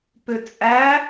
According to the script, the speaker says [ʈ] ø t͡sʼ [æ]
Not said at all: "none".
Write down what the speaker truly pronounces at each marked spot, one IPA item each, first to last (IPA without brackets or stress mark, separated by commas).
p, æ